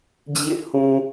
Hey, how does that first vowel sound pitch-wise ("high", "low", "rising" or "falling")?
falling